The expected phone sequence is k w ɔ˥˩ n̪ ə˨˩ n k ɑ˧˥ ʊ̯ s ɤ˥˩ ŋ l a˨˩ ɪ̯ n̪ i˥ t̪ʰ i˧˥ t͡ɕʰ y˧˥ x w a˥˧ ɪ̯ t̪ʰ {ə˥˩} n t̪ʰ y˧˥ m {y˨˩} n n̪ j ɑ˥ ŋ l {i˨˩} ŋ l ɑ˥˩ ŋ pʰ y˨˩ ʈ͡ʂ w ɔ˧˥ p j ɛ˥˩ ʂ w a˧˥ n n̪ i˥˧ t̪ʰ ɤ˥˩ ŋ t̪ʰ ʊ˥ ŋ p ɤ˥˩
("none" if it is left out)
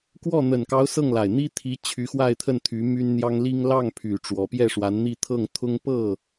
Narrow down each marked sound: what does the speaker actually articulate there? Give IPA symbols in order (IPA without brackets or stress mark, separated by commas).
ə˥˩, y˥, i˥